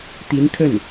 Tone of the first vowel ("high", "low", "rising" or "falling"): rising